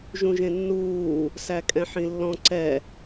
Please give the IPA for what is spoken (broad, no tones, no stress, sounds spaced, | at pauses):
ʒ ũ ʒ ẽ nː uː | s æ kʼ ɛ̃ ħ ĩ lː ɔ̃ ǀ ɛ